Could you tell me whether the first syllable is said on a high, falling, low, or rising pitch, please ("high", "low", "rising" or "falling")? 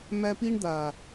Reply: high